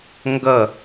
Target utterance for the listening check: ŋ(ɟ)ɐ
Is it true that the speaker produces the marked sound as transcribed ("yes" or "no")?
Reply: no